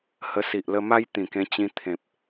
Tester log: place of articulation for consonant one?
glottal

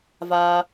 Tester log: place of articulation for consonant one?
labial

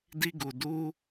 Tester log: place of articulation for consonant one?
alveolar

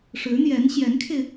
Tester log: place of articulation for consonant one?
retroflex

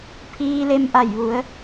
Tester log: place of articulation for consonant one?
labial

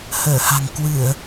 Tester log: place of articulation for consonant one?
glottal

